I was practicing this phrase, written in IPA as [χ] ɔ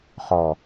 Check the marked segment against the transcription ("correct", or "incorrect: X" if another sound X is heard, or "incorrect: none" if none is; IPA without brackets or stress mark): correct